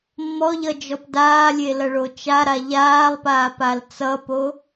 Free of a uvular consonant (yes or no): yes